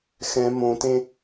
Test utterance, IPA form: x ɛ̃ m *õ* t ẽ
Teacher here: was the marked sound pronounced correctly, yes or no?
yes